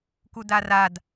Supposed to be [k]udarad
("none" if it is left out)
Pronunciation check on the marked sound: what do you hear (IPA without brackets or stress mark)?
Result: k